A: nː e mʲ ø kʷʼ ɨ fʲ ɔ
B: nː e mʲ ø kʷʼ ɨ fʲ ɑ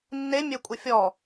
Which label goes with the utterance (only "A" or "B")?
A